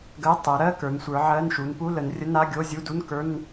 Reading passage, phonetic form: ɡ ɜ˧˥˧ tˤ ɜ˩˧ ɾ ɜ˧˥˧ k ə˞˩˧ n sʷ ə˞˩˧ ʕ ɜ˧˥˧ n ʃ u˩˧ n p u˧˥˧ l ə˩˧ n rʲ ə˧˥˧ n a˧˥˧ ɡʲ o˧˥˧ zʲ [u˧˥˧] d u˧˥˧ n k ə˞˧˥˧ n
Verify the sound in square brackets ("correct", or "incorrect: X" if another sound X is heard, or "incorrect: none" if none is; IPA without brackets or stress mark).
correct